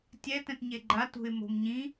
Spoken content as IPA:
tʲ ɛ t ɛ̃ t ɲ e ɡ͡ǃ a t ṳ ɪ̯ m o̤ m ɲ ĩ

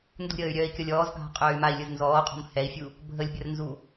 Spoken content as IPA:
n d ṳ ɾʲ əː y̯ ɾʲ œː i̯ kʲ ɔ lʲ ɔː z ɡʱ a̤ qʼ œː y̯ m a i̯ lʲ ɯ z n z ɔː qʼ ɔ̤ m h ɛ i̯ fʲ u | bʱ ə lʲ bʲ ɐ r n z u

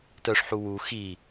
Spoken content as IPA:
t œ ʂ ħ u w u x i

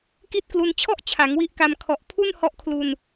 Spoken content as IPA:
k i˦˥ t̚ k l u˧ n t͡ɕʰ ɔ˥˩ ʔ t͡ɕʰ a˩˦ ŋ w i˦˥ ʔ k a˧ m kʰ ɔ˨˩ ʔ pʰ u˥˩ n h ɔ˦˥ ʔ kʰ l u˧ n

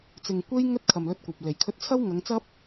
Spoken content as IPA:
t͡s ɪ˨ ŋ kʷ e˧ j ŋ ɵ˥ t̚ kʰ ɐ˨ m l ɵ˧ t̚ kʷ ɐ˨ p̚ l e˨˩ j kʰ ɵ˧ t̚ t͡sʰ ɐ˥ w ŋ ɐ˨˧ ŋ t͡s ɐ˥ p̚

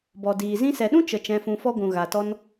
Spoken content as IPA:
b ɔ˨ d iː˨ z ĩ˦ s ɛ˨ ɗ ũ˦ t͡ʃ ə˨ t͡ʃ ɛ̃˧ f ũ˧ f ɔ˦ ɡʷ ũ˨ ɣ a˨ t ɔ˧ n

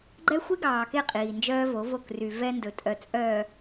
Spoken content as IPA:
ɡ͡ǃ ɛ˦ xʷ i˦ ɡ ɑː˨ k e˦˨ qʼ iː˨ n d͡ʒ œː˦ v o˨˦ v o˦˨ k r y˨ v ɛ˦ n d ɵ˨ tʼ œ˨ t͡sʼ œː˨

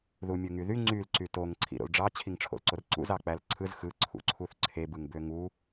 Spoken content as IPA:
ð u mʲ ɯ ŋ y ð y ŋ͡ǀ y l ǀ y t o ŋ ǀʰ ḭ ɾ o̰ l ɖ͡ʐ ɑ t͡ɕʰ i ŋ ʈ͡ʂʰ o̰ l ǀ o r ǀ ṵ z ɑ k͡p æ l ǀʰ ɯ z x ɯ ǀʰ ṵ ǀʰ u θ ǀʰ e b ɯ ŋ b ø ŋ u

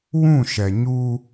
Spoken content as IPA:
w ũ˦˨ ʃ ɛ˨ ɲ u˦

